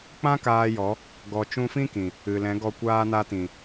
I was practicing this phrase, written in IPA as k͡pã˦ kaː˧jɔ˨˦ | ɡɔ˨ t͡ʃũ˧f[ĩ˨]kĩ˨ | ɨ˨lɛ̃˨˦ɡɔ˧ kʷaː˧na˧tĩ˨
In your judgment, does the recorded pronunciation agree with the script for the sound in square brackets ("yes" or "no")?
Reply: no